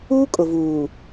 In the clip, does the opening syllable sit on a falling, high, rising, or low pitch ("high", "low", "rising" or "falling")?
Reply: high